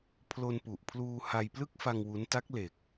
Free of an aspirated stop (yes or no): no